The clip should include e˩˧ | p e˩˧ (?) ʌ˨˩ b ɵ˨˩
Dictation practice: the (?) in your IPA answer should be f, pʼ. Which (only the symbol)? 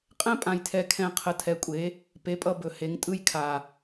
pʼ